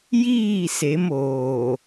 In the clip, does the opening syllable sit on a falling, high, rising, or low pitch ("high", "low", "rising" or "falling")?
falling